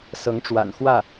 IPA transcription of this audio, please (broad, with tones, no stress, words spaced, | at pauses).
sɤ˧˥ŋʈ͡ʂwa̰˨˩n xwä˥˩